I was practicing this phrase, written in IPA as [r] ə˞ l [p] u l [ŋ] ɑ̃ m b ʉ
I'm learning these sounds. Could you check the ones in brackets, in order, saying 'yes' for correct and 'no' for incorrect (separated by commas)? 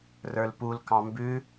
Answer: yes, yes, no